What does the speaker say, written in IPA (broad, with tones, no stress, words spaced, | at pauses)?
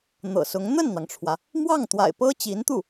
n̪ɤ̰˨˩sʊ˧˥ŋ n̪ə˥˩nn̪ɑ˩ŋʈ͡ʂʰwä˩ | mwɑ˥˩ŋt̪wa̰˨˩ɪ̯pɤ˥ t͡ɕi˧˥nt̪u˥˩